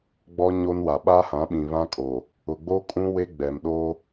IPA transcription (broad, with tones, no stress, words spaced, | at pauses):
ɡ͡bɔ˦ ɲo˦nwa˨ ɓa˦hã˨˦ɓĩ˨ βã˦kʼo˨ | ʊ˨ɡ͡bo˦ kʼũ˦ we˦ɡ͡bɛ˨mɗoː˦